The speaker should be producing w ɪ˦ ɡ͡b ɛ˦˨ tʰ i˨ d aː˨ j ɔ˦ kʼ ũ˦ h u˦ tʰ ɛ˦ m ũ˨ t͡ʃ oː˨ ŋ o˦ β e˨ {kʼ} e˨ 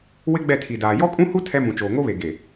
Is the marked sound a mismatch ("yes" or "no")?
yes